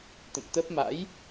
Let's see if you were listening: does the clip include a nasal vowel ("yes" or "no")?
no